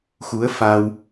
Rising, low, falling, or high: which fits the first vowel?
rising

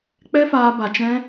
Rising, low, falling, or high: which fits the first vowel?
high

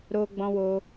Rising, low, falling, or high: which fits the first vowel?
high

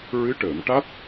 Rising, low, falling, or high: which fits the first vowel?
rising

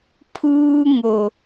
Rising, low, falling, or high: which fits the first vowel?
high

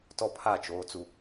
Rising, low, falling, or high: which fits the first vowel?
high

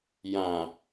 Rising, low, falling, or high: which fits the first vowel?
low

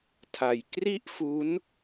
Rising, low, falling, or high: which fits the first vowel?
low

